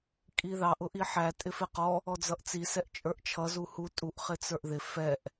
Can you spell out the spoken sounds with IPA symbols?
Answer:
kʼ i ð ɑ ʔ ʊ ʔ i ħ æ tʼ ɪ f ɪ q ɔ | ɔ d͡z ʌ ʔ t͡s i s ɛ ʔ t͡ʃʼ ə˞ ʔ t͡ʃʰ ʌ z u h u tʼ u ʔ χ ɪ t͡s ə˞ ʔ ð ɪ f ɛ ʔ

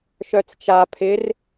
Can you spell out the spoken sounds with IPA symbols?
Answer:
ʃ œ t͡s t͡ʃ a pʰ ɪ r

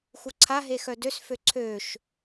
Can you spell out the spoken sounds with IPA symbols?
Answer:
x u ǀʰ a ɦ e x œ d ø s f ø ǀʰ ø ʃ

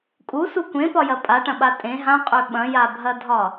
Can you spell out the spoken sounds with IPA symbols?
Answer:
kʼ u s u kʷ ẽ p ɒ j ɐ pʼ a ʈ ɐ̃ ɓ a tʼ ẽ ɦ ã qʼ ø ɓ ɐ̃ j a bʱ ɐ dʱ ɒ

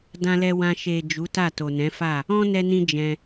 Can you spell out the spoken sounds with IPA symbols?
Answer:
d ã˧ l ɛ˧ w ã˧ ʃ e˨ d͡ʒ u˨˦ t a˦˨ t o˨ n ɛ̃˨˦ f a˦˨ | ɔ̃˦ n ɛ˧ n ĩ˧ d͡ʒ ɛ̃˧

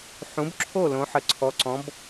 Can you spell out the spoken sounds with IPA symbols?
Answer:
ħ ũ˨˥ b ǁʰ o˥˨ l õ˨˥ ħ ə˨˥ ǀʰ ɔ˨˥ ǀ ɔ̃˨˥ b

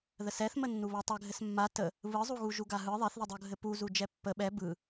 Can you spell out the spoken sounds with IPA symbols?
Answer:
ð ə s ɛ θ m ə nː u β a tˤ ɘ ɡʱ ɘ s mː a t ə | β ɯ zˤ u ɣ u ʒ u ɡ a ɦ ɯ ðˤ ɛ θ ð ɘ dˤ u ɡʱ ɘ p u z u d͡ʒ ɛ pː ə ɓ ɛ b ɯ

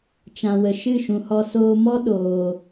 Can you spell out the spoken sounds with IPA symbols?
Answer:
t͡ʃ ã˨ w ə˨ ʃ ɨ˦˨ ʃ ũ˨ h ɔ˧ s oː˧ m ɔ˦ ɗ oː˨

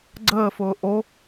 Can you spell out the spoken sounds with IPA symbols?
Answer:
ɡ͡ǀ əː f ʊː ʔ o

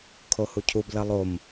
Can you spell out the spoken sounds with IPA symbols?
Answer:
kʰ o h u cʰ u b l ɐ lˠ o m

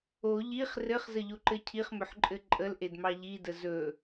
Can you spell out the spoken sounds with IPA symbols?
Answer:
o ʎ i χ r ɘ χ z ə ʎ o ǃ ɘ cʰ i χ m ɵ ħ ǃʼ ɘ ǃʼ ə l ʔ e d m ɑ ʎ i d ə z ɵ

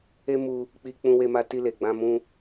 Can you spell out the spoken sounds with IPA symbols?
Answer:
e˦ m u˧ | k͡p i˧ k͡p ũ˧ w e˧ m a˧ t i˧ l e˨ ɡ͡b ã˧ m ũ˧

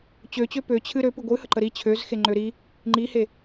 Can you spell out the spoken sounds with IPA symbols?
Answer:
t͡ɕ ø t͡ɕ ø p ø t͡ɕʰ ɨ ɾ ø p ɨ ɡʷ ɨ h ə ǃ ə ɾ i t͡ɕʰ ø z x e ŋ͡ǃ ø ɾ i | ŋ͡ǃ i h e

